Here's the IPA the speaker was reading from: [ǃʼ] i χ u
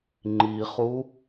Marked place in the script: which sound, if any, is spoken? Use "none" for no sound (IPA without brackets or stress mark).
ŋ͡ǃ